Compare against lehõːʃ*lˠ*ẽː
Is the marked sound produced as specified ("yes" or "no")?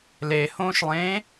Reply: yes